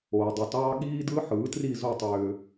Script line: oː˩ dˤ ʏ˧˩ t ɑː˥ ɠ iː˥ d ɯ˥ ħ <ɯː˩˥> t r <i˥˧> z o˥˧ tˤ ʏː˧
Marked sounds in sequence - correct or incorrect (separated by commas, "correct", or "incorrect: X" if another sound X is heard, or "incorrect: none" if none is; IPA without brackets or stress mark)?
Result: correct, correct